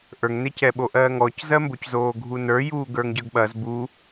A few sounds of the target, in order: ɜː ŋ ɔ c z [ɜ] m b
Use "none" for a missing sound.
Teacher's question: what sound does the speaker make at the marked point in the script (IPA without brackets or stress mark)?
ɜ